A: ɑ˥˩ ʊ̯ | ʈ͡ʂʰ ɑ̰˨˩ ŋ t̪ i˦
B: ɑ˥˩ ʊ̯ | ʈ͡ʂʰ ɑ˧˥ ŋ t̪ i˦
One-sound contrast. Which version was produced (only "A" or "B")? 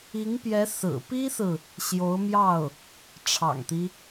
A